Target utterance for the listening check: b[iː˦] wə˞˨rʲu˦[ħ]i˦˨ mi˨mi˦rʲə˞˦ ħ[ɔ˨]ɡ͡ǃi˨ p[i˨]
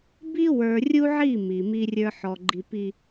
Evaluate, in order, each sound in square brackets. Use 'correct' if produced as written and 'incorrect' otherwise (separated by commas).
incorrect, incorrect, correct, correct